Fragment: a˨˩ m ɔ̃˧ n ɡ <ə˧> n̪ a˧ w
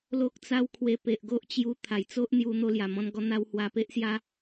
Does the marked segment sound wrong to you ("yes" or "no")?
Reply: yes